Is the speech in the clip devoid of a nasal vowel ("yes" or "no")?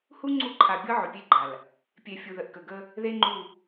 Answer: yes